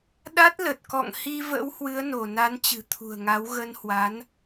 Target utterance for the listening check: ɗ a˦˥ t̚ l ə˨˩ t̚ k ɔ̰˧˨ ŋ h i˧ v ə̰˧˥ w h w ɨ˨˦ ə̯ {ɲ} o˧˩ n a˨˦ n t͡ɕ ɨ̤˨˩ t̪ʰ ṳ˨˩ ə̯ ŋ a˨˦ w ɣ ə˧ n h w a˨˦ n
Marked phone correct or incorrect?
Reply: incorrect: n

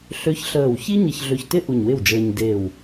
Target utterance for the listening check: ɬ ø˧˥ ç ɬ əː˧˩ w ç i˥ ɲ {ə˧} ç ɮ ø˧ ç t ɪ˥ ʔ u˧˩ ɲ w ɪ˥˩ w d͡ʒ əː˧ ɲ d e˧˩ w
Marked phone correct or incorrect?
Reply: correct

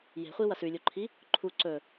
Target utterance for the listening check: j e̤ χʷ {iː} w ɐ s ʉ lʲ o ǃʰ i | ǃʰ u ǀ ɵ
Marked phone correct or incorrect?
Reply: incorrect: i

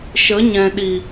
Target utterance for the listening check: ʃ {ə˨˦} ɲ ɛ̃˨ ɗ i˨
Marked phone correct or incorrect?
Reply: correct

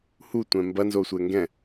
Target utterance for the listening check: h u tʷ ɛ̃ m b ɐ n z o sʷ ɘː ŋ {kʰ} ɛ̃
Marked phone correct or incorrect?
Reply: incorrect: ɡ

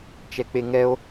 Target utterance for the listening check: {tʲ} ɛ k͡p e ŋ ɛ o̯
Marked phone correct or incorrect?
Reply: incorrect: t͡ʃ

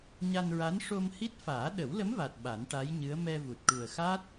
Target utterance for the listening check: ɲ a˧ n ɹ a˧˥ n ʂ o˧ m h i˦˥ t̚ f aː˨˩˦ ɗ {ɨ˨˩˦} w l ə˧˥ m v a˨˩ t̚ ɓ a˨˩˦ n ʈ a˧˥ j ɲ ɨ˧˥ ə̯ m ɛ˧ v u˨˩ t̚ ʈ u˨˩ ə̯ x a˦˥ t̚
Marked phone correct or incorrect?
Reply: incorrect: ə˨˩˦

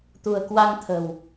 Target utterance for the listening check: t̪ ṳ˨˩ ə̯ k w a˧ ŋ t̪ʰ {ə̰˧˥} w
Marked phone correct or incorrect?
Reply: incorrect: ə̤˨˩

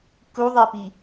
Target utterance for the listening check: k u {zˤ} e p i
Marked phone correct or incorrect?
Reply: incorrect: ðˤ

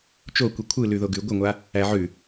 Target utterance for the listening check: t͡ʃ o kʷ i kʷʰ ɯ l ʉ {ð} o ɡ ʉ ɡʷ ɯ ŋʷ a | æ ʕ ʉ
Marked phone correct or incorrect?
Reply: correct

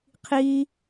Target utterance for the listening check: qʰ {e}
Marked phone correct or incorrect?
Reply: incorrect: i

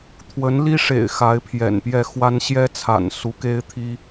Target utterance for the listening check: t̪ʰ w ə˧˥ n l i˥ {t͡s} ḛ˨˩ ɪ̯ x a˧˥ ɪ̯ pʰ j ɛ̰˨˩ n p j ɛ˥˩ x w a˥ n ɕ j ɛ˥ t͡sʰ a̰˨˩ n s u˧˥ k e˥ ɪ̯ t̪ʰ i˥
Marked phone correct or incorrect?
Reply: incorrect: ʂ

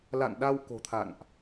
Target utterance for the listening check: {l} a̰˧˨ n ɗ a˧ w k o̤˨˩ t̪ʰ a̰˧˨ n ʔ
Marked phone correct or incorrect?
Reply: correct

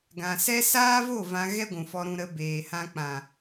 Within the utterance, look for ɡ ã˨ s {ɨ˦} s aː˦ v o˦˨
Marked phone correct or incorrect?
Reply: incorrect: ɛ˦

